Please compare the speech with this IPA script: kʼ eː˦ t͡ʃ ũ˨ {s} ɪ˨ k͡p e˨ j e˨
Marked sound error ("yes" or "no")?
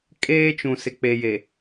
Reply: no